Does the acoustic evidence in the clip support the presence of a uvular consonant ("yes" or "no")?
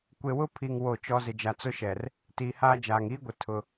no